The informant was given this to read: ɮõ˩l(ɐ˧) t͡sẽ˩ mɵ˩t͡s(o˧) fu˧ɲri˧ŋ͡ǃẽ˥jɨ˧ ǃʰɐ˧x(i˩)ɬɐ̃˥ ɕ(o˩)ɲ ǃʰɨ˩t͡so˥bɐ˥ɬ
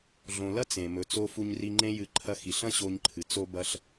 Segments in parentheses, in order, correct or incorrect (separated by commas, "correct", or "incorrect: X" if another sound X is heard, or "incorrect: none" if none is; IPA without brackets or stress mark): incorrect: ɐ˥, correct, correct, incorrect: o˧